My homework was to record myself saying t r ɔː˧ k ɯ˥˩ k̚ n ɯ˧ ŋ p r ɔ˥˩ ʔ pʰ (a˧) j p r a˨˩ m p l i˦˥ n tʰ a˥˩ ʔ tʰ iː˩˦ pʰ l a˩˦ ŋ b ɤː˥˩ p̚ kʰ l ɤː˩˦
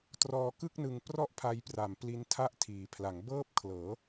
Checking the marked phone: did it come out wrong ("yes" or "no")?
no